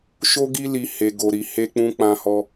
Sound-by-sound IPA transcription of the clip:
ʃ o˦ ɡ i˦ l i˧ h e˧ ɡ o˧ ɾ i˧ h e˧ k͡p ũ˧ k͡p ã˧ h ɔ˧

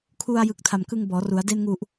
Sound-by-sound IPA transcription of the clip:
kʰ u˧ a̯ j ɯ˨˩ k̚ tʰ a˨˩ m k ɯ˧ ŋ b ɔː˩˦ r u˩˦ a̯ d e˧ n ŋ u˨˩ ʔ

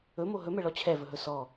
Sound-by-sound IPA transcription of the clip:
ɵ m o ɦ ɵ m ɛ ɭ ɔ t͡ɕʰ ɛ v ɵ ɦ ɵ s ɔ

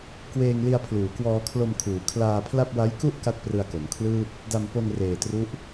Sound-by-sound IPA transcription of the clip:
k w eː˧ ŋ l i˧ a̯ pʰ l uː˩˦ k w ɔː˧ kʰ l o˧ m kʰ uː˩˦ kʰ l aː˧ pʰ l a˥˩ p̚ w a˦˥ j k u˥˩ ʔ k a˥˩ t̚ p r ɯ˧ a̯ k o˩˦ m kʰ l ɯː˥˩ p̚ | d a˧ m p o˧ n r eː˨˩ t r u˦˥ ʔ

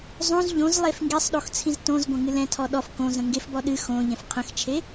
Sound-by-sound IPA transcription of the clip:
zˤ õ z ʎ õ z lˠ e f ŋ ɡ e sˤ ɗ o x t͡sʰ ĩ z t õ z ɡʷ ɐ̃ ŋ ɨ l ɛ̃ tʰ ɔ ɗ ɔ f k õ z ə̃ ŋ ɡ e f b ɔ ɗ ɨ x õ ʎ ɛ̃ f qʰ ə̃ x t͡ʃʰ e

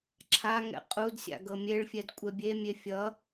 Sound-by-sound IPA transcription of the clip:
ǁʰ a ŋ ɛ̰ qʼ u d sʲ a̰ ɡ ɤ mʲ e ɭ fʲ ɛ d kʷʼ ɛ bʲ e mʲ e fʲ ʌ

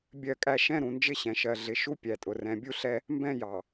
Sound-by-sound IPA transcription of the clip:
bʲ ɜ˦˨ kʼ æ˦ ʃ ɛ̃˦ ɾ ũ˨ n d͡ʒ ɪ˦ ɕ ɛ̃˨ ʃ ɜ˨ ɮ ɪ˨ ʃ u˦ pʲ æ˨ tʼ ʊ˨ r ɛ̃˨ bʲ u˦ ɬ ɛ˦ | m b ɛ̃˦ j ɑ˨

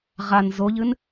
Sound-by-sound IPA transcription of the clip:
ʁ a n z o ʎ ɨ n

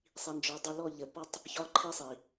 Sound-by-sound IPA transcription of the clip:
sˤ i˨ n d͡ʒ ɔ˨˦ dˤ ɵ˧ l ɔ˦˨ ʎ ə˨ p ɒ˦ tˤ | ç ɒ˦˨ ǃʰ i˦ sˤ i˨

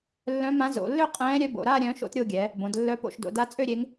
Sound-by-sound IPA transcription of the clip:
lː œ̃˧˥ m ã˧˥ z o̰˩˧ lː ø˥˧ qʼ ɛ̃ː˧˥ ɾʲ œ˧˥ b o̰˩˧ ɾ a˥˧ ɾʲ œ̃ː˧˥ ʃ o̰˧˥ t ɾʲ o˥˧ ɡʲ ɛ˩˧ | b õ˩˧ d lː œ˧˥ p o̰˩˧ ʃ d o̰˩˧ d a˧˥ t͡sʼ ø˥˧ ɾʲ e˧˥ ŋ

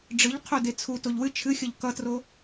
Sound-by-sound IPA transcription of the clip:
ɖ͡ʐ ɨ ʎ qʰ o d e t͡sʰ u t o ʎ w ɨ t͡ʃʰ ɨ xʲ ʌ ʎ k ʌ t r o

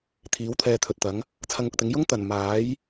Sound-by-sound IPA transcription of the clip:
t̪ʰ iː˨˥ w t̪ʰ ɛː˧ t̪ʰ ɵ˨ t̚ t̪ ɐ˨˥ ŋ | t͡sʰ ɐ˧ ŋ ʊ˨ k̚ t̪ ɪ˨˥ ŋ j ʊ˥ ŋ t̪ ɐ˨˩ n m aː˨˥ j

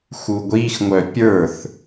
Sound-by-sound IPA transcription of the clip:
x u ɡʷ i x ŋʷ œ pʲ ə˞ θ

